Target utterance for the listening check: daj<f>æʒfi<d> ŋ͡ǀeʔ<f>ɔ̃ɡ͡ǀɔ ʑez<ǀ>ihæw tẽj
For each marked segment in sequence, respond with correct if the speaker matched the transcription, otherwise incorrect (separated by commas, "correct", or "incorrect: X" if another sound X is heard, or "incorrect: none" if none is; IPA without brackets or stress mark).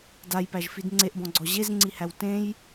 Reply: incorrect: p, correct, incorrect: b, incorrect: ŋ͡ǀ